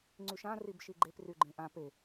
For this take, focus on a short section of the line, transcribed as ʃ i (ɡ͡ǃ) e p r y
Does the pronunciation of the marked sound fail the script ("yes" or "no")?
no